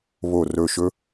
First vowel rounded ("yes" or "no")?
yes